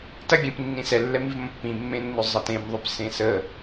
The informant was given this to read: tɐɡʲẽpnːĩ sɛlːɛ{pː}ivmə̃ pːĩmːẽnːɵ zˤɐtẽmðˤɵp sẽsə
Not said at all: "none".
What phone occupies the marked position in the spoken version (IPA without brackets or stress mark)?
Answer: m